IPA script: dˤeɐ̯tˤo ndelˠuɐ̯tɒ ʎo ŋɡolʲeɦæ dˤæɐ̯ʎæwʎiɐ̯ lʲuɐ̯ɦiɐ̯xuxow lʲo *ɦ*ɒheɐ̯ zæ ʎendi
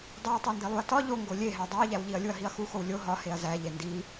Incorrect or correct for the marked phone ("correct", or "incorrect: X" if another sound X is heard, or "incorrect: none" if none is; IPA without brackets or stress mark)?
correct